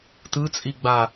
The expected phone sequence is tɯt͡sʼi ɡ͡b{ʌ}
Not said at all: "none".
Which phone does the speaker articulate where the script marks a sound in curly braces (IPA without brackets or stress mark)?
a